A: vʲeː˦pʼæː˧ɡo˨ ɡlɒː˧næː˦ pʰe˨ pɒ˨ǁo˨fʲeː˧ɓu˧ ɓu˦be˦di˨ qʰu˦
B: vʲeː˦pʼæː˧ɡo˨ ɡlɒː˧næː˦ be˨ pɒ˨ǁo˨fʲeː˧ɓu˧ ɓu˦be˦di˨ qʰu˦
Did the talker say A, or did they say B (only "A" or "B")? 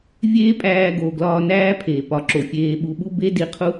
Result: A